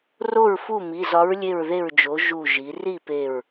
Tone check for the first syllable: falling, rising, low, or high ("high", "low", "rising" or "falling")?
falling